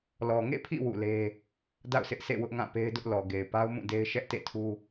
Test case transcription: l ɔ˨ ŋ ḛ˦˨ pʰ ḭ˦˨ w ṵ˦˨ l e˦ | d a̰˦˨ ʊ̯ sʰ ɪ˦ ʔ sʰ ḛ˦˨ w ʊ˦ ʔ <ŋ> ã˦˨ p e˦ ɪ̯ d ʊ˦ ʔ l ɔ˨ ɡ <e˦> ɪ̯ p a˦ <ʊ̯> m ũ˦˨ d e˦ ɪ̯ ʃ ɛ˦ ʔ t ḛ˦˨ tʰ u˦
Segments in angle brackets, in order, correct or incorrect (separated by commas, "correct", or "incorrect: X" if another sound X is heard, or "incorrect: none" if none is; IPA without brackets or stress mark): correct, incorrect: e˨, correct